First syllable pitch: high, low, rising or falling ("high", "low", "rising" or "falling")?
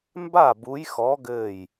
falling